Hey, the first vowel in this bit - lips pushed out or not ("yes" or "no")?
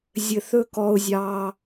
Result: no